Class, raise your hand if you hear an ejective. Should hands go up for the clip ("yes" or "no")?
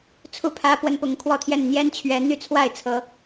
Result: no